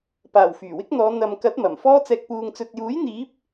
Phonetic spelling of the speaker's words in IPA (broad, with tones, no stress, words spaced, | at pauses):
paː˨˩w fyː˨˩wɪ˥k̚n̪ɔː˨˧ n̪ɐ˨mkɐ˨˥t̚ mɐ˨˩mfɔː˥ t͡sɛː˨k̚puː˨ŋt͡sɵ˨t̚juː˨˥j n̪iː˨˥p̚